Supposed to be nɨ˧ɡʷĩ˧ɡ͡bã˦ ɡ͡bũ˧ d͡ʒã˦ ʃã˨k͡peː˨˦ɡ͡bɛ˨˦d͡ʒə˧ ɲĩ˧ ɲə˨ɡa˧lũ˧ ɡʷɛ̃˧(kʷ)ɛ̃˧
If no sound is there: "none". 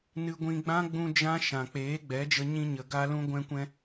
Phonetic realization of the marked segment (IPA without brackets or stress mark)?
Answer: kʷ